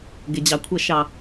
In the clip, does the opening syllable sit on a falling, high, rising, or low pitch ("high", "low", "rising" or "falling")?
low